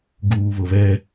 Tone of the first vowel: low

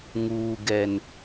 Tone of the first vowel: low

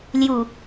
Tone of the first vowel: low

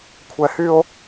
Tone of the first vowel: high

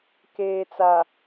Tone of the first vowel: low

